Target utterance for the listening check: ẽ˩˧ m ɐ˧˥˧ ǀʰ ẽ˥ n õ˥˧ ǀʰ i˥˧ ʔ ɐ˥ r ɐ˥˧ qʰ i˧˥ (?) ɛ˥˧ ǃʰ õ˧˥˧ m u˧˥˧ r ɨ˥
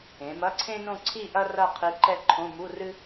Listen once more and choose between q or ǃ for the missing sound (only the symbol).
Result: ǃ